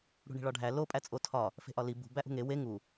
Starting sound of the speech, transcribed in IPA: ɽ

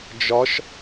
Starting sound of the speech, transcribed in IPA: d͡ʒ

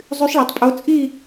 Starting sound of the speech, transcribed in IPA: zˤ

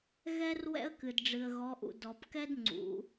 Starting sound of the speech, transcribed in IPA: ɣ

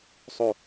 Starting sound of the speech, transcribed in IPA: sˤ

